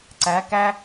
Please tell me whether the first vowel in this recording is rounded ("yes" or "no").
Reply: no